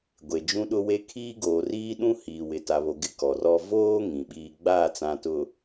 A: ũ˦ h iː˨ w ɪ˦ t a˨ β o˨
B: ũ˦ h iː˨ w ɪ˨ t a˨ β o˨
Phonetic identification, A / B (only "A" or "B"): B